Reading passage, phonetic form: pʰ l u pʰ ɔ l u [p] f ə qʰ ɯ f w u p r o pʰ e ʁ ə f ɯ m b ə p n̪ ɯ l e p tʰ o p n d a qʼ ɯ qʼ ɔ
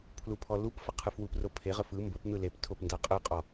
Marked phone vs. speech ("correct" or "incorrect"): correct